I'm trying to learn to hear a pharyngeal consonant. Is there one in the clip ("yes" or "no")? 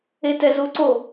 no